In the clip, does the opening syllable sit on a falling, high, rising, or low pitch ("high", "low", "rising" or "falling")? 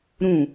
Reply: falling